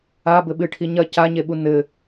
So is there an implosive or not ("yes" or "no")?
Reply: yes